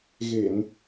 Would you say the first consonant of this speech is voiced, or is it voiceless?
voiced